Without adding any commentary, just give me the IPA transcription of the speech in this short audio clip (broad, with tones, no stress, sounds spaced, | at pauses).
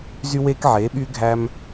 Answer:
z y˧ w eː˧ k ʕ eː˩˧ ɓ yː˧ ɡʱ æ˧ m